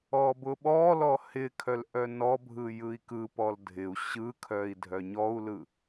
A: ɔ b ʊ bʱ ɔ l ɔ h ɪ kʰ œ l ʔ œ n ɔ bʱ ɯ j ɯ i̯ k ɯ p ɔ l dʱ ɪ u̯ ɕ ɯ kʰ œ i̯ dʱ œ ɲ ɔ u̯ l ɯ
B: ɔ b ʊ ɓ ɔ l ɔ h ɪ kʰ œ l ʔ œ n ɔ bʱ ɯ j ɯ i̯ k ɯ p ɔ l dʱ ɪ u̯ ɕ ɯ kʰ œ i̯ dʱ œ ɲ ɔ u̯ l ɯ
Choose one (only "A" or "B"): B